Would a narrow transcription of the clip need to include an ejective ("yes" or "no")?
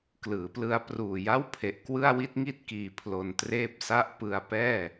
no